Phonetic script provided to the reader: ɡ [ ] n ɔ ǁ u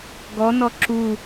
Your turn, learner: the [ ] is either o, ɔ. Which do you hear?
ɔ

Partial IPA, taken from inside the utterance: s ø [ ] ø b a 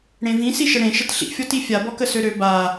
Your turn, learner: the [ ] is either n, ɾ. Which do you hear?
ɾ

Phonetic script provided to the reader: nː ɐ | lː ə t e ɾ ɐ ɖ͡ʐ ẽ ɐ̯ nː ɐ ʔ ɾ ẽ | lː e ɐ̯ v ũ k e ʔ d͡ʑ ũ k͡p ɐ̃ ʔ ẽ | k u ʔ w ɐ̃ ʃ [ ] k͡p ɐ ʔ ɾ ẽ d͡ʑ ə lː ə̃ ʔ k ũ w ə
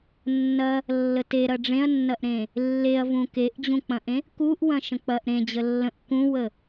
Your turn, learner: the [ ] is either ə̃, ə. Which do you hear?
ə̃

